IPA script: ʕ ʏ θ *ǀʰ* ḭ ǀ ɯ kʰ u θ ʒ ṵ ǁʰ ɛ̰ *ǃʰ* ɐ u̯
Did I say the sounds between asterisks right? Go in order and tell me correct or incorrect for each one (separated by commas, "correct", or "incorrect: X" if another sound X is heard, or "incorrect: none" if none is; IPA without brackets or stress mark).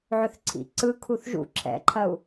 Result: correct, correct